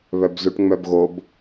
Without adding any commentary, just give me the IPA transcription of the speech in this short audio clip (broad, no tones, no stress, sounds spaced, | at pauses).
β œ b z u ʈ ŋ͡m œ b ɣ o b